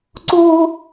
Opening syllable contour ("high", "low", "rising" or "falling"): high